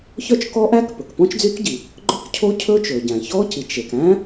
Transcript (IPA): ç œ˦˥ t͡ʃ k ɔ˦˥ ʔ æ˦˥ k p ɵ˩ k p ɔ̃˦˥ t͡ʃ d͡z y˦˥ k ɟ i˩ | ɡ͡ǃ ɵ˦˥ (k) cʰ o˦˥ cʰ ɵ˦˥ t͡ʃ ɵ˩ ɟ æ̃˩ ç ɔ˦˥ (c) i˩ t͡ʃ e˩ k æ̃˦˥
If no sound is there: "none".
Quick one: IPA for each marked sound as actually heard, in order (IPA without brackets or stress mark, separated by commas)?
k, c